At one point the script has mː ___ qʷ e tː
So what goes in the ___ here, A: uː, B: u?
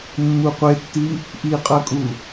B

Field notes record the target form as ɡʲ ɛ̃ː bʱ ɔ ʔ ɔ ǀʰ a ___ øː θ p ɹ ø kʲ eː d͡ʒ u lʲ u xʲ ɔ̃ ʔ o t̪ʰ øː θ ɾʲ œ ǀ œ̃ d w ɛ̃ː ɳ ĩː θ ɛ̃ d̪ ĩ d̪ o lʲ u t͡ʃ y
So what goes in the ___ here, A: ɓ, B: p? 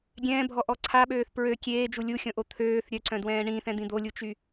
A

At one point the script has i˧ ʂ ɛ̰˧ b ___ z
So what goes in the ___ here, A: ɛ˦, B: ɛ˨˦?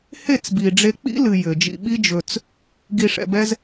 A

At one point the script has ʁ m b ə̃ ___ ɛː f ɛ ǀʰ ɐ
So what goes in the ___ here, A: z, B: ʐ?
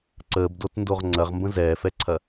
A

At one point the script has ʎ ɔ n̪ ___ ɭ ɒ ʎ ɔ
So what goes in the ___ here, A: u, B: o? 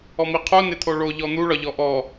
A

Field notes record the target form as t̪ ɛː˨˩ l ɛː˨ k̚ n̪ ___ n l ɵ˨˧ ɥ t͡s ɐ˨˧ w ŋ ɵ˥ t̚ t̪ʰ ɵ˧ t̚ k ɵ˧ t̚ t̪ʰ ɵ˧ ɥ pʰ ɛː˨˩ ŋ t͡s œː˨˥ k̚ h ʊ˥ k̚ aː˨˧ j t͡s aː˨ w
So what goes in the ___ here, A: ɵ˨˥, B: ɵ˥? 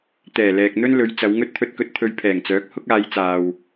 B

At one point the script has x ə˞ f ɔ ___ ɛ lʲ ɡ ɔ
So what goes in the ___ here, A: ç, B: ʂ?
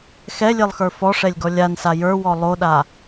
B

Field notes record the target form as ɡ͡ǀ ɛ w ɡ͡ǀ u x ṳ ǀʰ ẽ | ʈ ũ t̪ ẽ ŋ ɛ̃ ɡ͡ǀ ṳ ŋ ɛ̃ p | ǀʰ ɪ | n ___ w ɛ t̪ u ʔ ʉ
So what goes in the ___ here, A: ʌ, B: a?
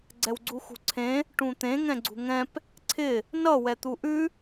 A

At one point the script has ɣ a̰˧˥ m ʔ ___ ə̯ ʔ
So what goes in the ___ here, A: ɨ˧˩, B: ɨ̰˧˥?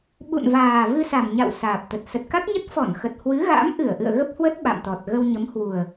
A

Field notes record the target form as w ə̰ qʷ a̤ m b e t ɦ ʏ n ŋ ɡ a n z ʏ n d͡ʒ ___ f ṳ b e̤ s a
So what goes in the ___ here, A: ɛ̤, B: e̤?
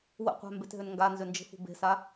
B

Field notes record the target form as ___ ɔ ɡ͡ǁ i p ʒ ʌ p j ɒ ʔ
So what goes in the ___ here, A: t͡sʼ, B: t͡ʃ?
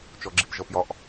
B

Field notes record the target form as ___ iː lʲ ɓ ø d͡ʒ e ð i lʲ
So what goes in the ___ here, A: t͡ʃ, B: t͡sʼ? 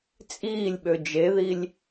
B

